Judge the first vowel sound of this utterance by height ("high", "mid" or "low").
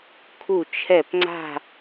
high